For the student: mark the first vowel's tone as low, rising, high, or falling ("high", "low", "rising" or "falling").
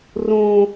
high